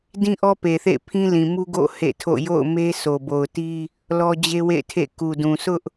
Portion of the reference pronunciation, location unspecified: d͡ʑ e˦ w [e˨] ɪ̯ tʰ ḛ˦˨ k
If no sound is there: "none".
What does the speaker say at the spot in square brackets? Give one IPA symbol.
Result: ḛ˦˨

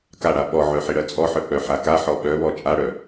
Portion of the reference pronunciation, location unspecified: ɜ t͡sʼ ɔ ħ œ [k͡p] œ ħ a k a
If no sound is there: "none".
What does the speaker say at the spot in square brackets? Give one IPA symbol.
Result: k͡p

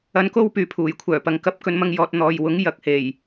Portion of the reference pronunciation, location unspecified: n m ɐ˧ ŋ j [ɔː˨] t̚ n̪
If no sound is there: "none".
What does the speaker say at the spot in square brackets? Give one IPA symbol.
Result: ɔː˨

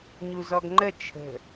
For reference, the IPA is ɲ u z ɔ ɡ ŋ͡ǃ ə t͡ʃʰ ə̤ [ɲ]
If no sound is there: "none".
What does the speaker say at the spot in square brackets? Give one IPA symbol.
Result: none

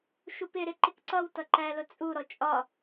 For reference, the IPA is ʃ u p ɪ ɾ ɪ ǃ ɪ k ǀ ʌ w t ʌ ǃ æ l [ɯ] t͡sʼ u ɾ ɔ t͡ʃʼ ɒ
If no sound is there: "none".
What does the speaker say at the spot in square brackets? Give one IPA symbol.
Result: ʊ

